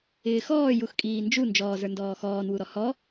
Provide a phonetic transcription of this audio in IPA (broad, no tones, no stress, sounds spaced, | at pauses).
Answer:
ɪː x ɔː j u x kʼ iː n d͡ʒ u n d͡ʒ ɔː z ə˞ n d ɔː x ɔː n w u ɾ ɔ h ɔ